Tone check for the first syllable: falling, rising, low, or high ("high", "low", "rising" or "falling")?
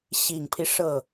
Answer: low